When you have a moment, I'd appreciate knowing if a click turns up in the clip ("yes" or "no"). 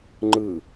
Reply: yes